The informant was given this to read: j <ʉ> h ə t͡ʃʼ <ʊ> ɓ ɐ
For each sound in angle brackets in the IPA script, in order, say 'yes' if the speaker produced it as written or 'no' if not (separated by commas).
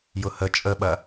no, no